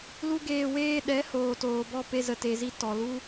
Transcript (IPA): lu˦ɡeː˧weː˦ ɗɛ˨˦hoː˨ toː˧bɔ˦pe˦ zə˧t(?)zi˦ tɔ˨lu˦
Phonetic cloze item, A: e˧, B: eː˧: A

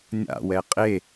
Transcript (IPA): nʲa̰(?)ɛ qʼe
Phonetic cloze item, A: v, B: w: B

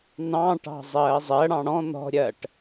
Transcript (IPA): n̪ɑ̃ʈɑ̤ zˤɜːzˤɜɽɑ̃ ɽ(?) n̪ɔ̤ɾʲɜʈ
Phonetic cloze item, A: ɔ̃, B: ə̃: A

